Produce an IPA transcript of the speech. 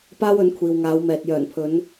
p aː˥ w ɵ˨˥ n kʷʰ iː˨ w ŋ aː˨˧ w m ɛː˨ t̚ j œː˨˩ n pʰ ɵ˨˧ n

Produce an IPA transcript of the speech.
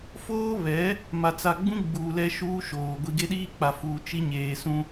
f oː˦ β ɛ˨˦ | m a˨ t͡s a˨ ɡ͡b ũ˦ ɡ͡b uː˨ l ɛ˦ ʃ uː˦ ʃ oː˨ ɡʷ i˨ ɡ e˦ ɗ iː˦ k͡p a˨ f uː˨ t͡ʃ i˦ ɲ eː˨ s ũ˦

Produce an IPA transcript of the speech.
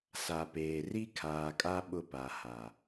s a˨ p eː˨ r i˦ kʰ aː˨ kʼ a˦ ɓ ʊ˦ p a˨ h a˨

